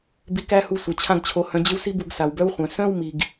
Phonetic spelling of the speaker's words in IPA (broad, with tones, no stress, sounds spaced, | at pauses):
b i˧ k æ˦ h u˧ sʷ œ˨ t͡ɕʰ ã˦ ɡ t͡ɕʰ o˧ h œ̃˧ d͡ʑ ɪ˦ w s i˦ b u˧ ɡ s a˨ w b œ˦ w χʷ œ̃˨ s œ̃˦ w m i˨ ɡ